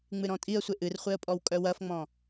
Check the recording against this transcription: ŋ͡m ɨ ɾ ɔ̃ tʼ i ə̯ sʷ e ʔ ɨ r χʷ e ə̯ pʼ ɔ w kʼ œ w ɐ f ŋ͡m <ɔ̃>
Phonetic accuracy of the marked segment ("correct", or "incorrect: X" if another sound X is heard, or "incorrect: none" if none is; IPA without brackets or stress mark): correct